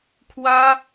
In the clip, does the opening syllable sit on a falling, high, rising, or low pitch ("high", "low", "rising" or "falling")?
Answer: high